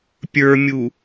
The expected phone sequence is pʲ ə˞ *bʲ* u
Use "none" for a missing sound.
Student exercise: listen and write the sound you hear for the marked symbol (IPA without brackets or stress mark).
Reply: mʲ